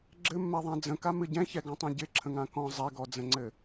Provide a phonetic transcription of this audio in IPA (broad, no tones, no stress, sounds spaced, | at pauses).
ɡ͡ǁ ɘ mː ɛ ðˤ ã d͡z ə̃ k a m ɨ ɟ ɛ̃ ç ɛ ɡ ɔ̃ tˤ ɛ̃ ɟ ɪ ǁʰ ə̃ ŋ ã k ɔ̃ zˤ ɛ ɡ ɔ d͡z ə̃ ŋ͡ǀ ɘ